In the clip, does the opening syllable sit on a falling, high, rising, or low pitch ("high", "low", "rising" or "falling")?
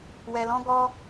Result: low